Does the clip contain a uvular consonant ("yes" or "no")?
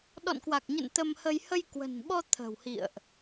no